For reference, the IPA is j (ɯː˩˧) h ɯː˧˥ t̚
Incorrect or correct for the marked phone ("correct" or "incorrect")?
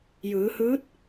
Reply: correct